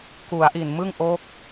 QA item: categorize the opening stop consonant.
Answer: plain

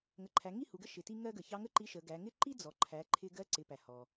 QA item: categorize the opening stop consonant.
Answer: click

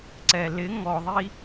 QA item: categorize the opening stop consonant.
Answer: click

